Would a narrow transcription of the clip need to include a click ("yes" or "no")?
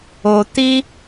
no